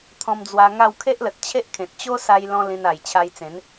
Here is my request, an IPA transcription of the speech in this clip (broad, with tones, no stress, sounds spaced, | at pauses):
t̪ʰ ɔ̃˧ m d͡z w a˧ ŋ a˥˧ w kʰ e˦ ʔ l ə˨ t̚ t͡ɕʰ e˦ ʔ kʰ ẽ˨ t̚ t͡ɕ o˦ s a˧ j l ɔ̃˧ l ĩ˧ n a˨˩ j t͡ɕʰ a˧ j t͡s ẽ˨˦ n